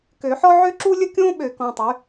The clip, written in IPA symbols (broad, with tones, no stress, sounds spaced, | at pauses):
k ø˨˩˦ ħ ɔ˥ ʕ ø˥ ǁ u˥ lʲ ə˥ kʲ õː˥ ɓ ø˨˩˦ k ɔ̃˩˧˩ tˤ y˩˥